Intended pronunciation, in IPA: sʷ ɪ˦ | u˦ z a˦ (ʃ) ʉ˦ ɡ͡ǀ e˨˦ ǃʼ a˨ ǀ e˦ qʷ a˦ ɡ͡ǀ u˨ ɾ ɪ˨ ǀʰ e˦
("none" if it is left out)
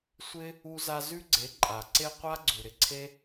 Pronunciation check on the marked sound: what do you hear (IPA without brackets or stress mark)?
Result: z